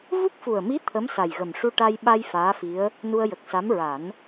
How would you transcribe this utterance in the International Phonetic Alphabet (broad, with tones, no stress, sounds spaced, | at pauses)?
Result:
v u˦˥ k̚ f u˨˩ ə̯ m i˧˥ t̪ʰ ə˧˥ m s a˨˩ j ɣ ə˨˩ m ʂ u˧ ʈ a˧ j ɓ a˧ j f aː˧˥ f i˧˥ ə̯ | n u˧ ə̯ j ə˨˩ k̚ s a˧˥ m ɹ a˨˩˦ n